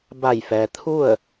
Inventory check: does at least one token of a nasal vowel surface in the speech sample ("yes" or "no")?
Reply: no